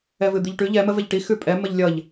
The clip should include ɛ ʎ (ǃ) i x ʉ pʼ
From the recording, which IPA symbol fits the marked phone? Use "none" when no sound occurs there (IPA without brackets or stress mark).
ʈ